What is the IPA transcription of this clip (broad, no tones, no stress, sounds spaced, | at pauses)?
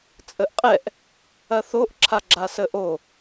t͡sʼ ə ʔ qʼ ɛ ʔ | ɐ θ o ʔ ǁʰ a ɡ͡ǁ a s ə ʔ o